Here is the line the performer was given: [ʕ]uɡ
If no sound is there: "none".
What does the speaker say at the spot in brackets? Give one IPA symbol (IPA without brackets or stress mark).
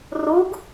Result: r